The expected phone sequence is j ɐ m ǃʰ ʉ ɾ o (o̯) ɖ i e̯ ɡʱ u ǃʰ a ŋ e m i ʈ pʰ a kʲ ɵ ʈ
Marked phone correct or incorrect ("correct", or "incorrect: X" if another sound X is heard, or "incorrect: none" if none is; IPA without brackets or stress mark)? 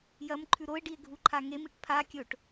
incorrect: e̯